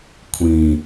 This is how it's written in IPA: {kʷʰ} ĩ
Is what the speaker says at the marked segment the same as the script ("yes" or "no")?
yes